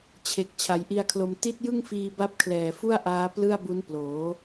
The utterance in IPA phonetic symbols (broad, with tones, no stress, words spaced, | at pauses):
t͡ɕʰe˨˩k̚ t͡ɕʰa˩˦jʔi˧a̯kʰlo˧m ti˦˥t̚ jɯ˥˩ŋfiː˧ ba˦˥p̚kʰlɛː˨˩ fu˥˩a̯ʔaː˦˥ plɯ˥˩a̯bu˦˥n ploː˩˦